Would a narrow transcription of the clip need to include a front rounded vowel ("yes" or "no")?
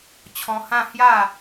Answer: no